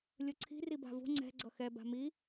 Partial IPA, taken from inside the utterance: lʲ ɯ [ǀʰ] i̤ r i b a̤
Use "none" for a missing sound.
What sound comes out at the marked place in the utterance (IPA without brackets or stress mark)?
ǀʰ